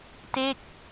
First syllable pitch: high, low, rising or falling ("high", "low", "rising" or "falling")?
falling